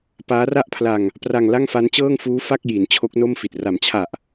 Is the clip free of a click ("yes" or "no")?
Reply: yes